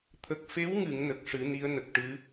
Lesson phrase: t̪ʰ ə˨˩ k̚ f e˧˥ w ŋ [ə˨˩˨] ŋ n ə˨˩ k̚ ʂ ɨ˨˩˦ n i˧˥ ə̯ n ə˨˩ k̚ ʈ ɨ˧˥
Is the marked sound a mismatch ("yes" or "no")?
yes